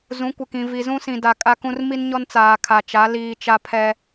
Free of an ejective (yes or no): no